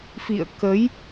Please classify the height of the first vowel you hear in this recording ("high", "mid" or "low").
high